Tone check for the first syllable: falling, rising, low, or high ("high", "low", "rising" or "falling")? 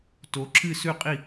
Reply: rising